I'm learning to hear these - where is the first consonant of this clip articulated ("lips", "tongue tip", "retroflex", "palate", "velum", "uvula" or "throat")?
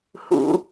throat